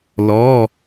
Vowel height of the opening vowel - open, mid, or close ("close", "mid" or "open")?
mid